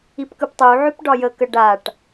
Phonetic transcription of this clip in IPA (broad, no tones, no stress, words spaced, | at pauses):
ipkɯptˤuʕʉp ɖɒjəkə ɖaʈ